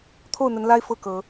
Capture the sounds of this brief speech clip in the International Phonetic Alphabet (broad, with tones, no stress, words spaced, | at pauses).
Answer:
t̪ʰo˥˨ʊ̯n̪ə˨˦nla˦ɪ̯ fɤ˥˨kɤ˨˦